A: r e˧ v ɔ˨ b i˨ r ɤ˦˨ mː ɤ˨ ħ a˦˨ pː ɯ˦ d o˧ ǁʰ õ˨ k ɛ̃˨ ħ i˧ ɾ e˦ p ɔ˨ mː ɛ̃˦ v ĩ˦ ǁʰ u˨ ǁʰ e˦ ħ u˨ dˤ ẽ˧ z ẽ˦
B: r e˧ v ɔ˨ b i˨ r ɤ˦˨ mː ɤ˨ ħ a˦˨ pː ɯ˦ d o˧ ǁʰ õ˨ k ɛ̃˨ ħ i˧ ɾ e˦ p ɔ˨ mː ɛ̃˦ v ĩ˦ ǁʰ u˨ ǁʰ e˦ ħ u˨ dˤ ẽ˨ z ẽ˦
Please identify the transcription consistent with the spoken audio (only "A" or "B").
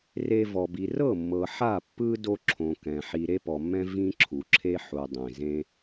B